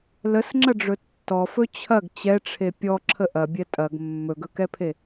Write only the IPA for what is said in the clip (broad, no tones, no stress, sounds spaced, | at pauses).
l ə s ŋ͡ǁ ɐ ɖ͡ʐ ɵ tː ɔ f ɵ t͡ɕʰ ɐ ɡ t͡ɕ ɛ ʈ͡ʂʰ e pʲ ɔ ǁʰ ə ʔ ɐ bʲ ɛ tʼ ɐ ɡ mː ɵ ɡ ɵ k ɛ pʰ e